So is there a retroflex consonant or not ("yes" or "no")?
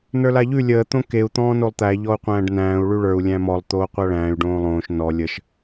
yes